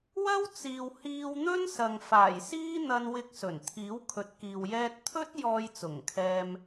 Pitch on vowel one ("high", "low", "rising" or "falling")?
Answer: high